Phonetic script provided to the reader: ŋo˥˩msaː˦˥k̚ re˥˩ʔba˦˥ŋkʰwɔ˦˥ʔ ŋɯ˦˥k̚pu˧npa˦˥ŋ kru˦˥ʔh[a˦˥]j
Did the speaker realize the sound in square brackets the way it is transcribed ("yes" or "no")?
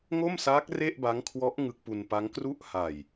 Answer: no